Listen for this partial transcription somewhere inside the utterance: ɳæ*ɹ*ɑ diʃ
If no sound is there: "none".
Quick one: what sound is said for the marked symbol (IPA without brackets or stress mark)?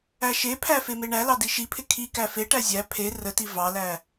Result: l